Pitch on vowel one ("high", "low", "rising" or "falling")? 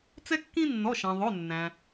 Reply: high